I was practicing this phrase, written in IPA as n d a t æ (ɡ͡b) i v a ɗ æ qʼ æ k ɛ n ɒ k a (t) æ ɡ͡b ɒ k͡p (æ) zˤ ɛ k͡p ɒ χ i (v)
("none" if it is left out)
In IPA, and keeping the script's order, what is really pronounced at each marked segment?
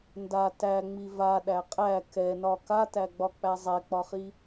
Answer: ŋ͡m, t, æ, none

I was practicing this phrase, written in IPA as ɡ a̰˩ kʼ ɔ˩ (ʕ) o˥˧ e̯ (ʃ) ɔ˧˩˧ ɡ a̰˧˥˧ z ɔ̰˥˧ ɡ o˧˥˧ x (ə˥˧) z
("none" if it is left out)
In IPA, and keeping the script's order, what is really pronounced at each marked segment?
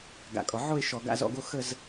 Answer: ʕ, ʃ, ə˥˧

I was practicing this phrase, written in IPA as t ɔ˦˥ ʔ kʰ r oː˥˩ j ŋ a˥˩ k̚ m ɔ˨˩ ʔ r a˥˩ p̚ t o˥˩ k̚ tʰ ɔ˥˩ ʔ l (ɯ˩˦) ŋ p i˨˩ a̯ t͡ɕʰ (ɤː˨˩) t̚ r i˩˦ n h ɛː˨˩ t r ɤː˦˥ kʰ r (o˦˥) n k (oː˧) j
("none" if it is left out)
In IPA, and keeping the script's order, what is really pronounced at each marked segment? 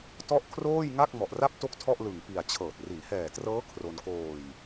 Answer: ɯ˨˩, ɤː˨˩, o˧, oː˨˩

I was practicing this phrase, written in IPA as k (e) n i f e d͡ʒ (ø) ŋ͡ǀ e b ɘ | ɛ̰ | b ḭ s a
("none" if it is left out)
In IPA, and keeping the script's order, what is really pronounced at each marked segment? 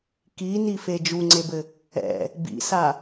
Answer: i, u

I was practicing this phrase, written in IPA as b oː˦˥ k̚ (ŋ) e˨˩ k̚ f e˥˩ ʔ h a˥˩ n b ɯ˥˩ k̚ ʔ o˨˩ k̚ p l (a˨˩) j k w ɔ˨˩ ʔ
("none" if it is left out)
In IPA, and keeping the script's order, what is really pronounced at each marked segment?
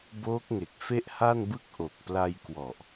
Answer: ŋ, a˧

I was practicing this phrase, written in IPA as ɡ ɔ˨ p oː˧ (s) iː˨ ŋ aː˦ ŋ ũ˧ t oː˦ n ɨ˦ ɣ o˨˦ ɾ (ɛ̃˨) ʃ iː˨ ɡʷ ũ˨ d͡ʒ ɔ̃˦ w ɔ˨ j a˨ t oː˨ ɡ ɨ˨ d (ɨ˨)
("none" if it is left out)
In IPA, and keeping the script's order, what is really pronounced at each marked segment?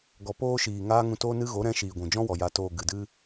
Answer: ʃ, ɛ̃˧, ɨ˧

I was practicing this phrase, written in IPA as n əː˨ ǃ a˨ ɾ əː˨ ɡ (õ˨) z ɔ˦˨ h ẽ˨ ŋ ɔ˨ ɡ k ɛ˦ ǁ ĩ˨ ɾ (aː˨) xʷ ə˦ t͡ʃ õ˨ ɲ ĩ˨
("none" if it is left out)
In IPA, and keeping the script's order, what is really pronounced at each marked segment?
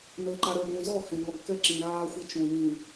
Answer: õ˨, aː˦

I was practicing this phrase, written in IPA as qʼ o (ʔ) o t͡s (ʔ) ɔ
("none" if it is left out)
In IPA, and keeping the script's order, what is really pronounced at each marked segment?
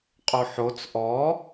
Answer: ħ, ʔ

